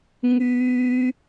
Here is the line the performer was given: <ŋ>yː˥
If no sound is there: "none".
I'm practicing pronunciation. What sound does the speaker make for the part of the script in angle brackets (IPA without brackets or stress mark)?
ŋ